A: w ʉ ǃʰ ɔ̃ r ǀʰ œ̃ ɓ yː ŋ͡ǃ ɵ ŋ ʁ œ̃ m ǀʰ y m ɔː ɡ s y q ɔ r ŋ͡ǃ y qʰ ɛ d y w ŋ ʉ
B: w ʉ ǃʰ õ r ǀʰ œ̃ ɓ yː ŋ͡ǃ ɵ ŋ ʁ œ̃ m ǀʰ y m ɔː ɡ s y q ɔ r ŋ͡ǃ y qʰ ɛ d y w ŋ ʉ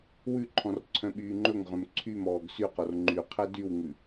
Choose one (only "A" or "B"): A